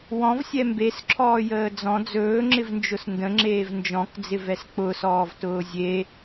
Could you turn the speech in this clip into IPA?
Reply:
wɔ̃vsʲɛ mbesǁʰɔːjəː d͡zɔ̃ d͡zɵːŋ͡ǁɪvnd͡ʒʊs ndə̃ŋ͡ǁeːv nd͡ʒɔ̃kd͡zɪvɛs k͡pʊsɔːvtʊː zʲe

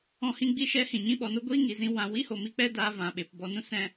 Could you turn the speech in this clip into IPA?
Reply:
ɔ̃˧hĩ˧ ɡ͡bi˦ʃɛ˦hĩ˨ ɲĩ˧ɓɔ˨no˦ ɡʷiː˦ŋi˨zĩ˧ wã˨ wi˦ho˨mi˧k͡pɛ˦ daː˦vã˨ ɓe˨pbɔ˧nũ˦ sɛ̃˦

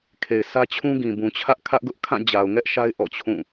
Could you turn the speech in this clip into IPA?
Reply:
kʰe˨ɪ̯sä˦ t͡ɕʰũ˦ɡĩ˨ bũ˨t͡ɕʰä˦ʔ kʰä˦ʔɡʊ˦ʔkʰã˦˨ d͡ʑa˨ʊ̯ŋɛ˦ʔʃa˦ɪ̯ ʔɔ̰˦˨t͡ɕʰũ˦˨

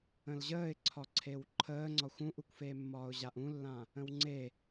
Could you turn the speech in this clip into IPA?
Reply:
ə̃lʑəːɪ̯ǀʰɒǀʰew ǃʰəːŋ͡ǀɒxʷ ũʔukʷfeːmːɒːʊ̯ ʑaʔũlːã | ə̃wŋ͡ǀe

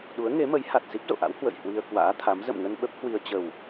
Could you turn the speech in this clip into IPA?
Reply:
ɗu˨˦ə̯ŋe˨˦mə˨˦j ha˨˩t̚ si˦˥p̚zo̰˧˨ʔa̰˧˥w hwə̰˧˨j hwi˧ə̯kwa̰ː˧˥t̪ʰa˨˦m zə̰˧˨mŋə˧n ɓə˦˥p̚ hwi˧ə̯ t͡ɕə˨˩w

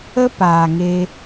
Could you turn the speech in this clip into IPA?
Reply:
ə˦paː˨ŋe˧

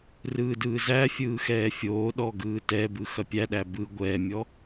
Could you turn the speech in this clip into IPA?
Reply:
rɯːdɯːzæfʲɯː xɛːfʲoːɗɔ ɡɯːtɛbɯ xɐpʲæɗæ bɯ ɡʷɛːmʲɔ

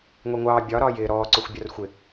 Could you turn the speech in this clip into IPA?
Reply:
ŋʷiŋʷɑː bʲɒ ɾɒːjɪː ɾɔːǀʊxʷ bʲɒrxʷɪ

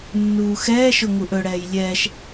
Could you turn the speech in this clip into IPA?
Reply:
nːuːxɛːʃʊ ŋuʔɵɽɛːj lʲɛːʃ

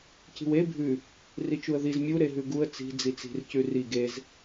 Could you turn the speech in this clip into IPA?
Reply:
ci̤we bʱʉ | rit͡ʃuə̯ðiz mʲu ɾeɦʉɡuə̯ t͡si̤ d͡zit͡si̤r cʉri ɡez

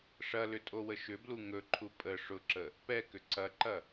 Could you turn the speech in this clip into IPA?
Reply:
ʂɐlʏtʼowə ʃʏblu ŋɵǃʰu pʼə ʂʊǁə | pɛkʏ ǀɐǃɐ

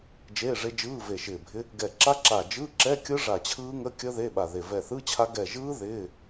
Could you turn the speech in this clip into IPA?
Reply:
d͡ʒeː˧˥˧ʐe˦˥d͡ʒɯː˧˥˧ ve˧˩ʃɪː˧˩bʱɪ˦˥ | ɡɛ˧˩ǁa˦˥ ǁa˧˩ d͡ʒɯ˧˥˧ǁɛ˧˥˧kʲɯ˦˥ ʐa˧˩t͡ɕʰɯː˦˥ŋə˧˥˧kʲə˦˥ ðe˧˥˧ɓa˧˩ðe˧˩ vɛ˧˩θɯ˧˥˧t͡ɕʰa˦˥ ɡɛ˧˩ʒɯː˦˥ ðɪː˧˥˧

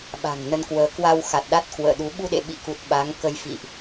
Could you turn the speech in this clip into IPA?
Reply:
ɓa̤˨˩ŋnə˧nkwəː˨˦ kwa˧wxa˨˩t̚ ɗa˦˥t̚kwə̰ː˧˨ɗu˨˦ ɓu˧ɗḛ˧˨ɓḭ˧˨ku˨˩t̚ ɓa˨˦ŋkə˧jfḭ˧˨ʔ

